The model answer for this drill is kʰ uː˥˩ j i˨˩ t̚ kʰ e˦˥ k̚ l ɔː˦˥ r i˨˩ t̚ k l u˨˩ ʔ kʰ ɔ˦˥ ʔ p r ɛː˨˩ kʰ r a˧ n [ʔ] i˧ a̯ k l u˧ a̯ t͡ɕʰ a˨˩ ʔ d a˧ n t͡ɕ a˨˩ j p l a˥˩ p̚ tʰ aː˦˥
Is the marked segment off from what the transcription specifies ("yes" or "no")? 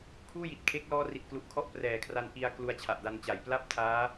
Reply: no